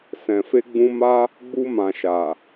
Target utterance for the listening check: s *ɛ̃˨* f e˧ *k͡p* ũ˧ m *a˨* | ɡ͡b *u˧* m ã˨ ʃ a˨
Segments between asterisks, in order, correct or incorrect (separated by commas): correct, incorrect, incorrect, correct